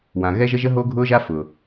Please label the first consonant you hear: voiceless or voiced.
voiced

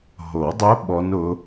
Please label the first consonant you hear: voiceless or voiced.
voiced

